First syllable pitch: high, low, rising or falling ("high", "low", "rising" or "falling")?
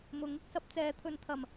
rising